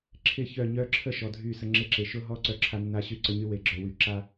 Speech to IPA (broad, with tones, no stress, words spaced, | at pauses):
ǁʰɪ˦˨çœ˦˨ ɲœ˦ǁʰə˦ ʃɔ˨dʱy˦˨sə˦ ŋ͡ǁɪ˦ǁe˨ ʃʊ˦ɦɔ˦ ǀœ˦ǁʰa˦nːa˦ ɕy˦ǀə˦ɲy˦ we˨ɡ͡ǁœ˨wy˨ ǁa˦